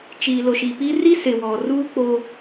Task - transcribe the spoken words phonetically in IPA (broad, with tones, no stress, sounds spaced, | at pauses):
t͡ʃ iː˨ l ʊ˨ ʃ i˨ p i˦ r i˦ s ɪ˨ w ɔ˨ r uː˦ k͡p oː˦